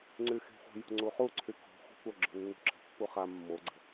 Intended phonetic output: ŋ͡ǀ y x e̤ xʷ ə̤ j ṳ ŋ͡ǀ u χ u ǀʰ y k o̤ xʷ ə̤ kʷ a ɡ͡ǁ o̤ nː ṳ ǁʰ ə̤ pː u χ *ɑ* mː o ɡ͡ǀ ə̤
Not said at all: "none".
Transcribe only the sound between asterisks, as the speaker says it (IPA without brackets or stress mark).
a